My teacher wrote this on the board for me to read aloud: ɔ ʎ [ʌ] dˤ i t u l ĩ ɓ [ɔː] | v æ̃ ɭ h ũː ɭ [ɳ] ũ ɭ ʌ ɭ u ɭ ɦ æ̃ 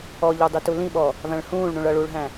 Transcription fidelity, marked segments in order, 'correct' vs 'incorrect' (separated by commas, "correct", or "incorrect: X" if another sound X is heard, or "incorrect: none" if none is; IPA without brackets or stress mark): incorrect: ə˞, correct, correct